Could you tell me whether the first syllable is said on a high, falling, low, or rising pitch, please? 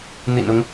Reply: low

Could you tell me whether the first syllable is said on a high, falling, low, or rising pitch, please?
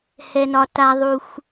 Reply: low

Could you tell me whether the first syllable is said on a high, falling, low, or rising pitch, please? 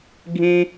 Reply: high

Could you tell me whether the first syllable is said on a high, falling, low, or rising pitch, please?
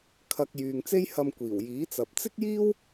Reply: low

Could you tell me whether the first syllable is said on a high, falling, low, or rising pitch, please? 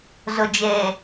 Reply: low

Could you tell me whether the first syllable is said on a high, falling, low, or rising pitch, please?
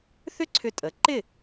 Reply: high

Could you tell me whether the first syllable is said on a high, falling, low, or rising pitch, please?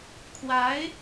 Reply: rising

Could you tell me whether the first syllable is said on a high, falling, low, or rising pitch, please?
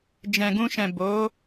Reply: low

